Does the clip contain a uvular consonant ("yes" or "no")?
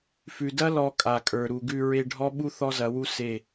no